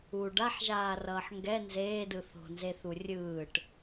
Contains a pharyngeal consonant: yes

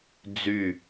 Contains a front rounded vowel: yes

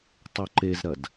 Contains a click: yes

